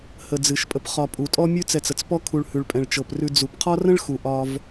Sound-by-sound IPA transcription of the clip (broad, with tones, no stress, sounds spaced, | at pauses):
h ə˨ d͡z ɨ˩ ʃ pʼ ə˨ p χ ɒ˨ pʼ u˩ tʼ ɔ˥ mʲ ʉ˦ t͡s ɛ˨ t͡s ə˩ t͡s p ɔ˦ kʰ u˨ ɭ h ʉ˩ ɭ pʼ ɛ̃˩ ɭ t͡ʃ ɤ˩ p r ʉ˨ d͡z u˩ p qʰ ɒ˥ r ə̃˥ ɭ x u˩ ʔ ɒ˨ v